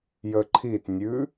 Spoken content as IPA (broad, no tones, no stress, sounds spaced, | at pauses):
j ə ǃʰ i t nʲ ʉ